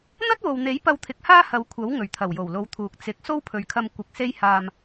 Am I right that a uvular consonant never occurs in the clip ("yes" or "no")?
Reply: yes